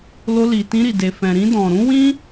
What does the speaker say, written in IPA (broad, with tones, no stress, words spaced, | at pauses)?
lo˧li˨ tĩ˧ɾi˨ de˨fɛ̃˨ɾĩ˧ dɔ̃˨ ɾũ˨˦wĩ˦